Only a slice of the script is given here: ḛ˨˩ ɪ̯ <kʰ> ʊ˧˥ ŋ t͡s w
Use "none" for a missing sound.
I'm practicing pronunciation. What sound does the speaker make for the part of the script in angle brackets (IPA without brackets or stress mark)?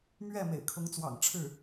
kʰ